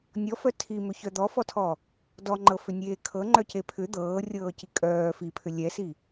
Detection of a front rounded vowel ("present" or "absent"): present